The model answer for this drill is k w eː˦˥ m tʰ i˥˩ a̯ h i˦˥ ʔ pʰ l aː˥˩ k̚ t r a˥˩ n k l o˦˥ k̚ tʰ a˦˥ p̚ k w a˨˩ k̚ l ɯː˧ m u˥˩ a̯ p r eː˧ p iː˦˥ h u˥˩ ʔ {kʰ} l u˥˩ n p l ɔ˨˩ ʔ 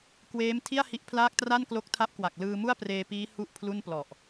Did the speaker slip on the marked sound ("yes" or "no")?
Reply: yes